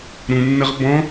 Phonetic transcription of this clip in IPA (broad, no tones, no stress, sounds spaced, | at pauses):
ɾ ũ nː ə ʁ b ɔ̃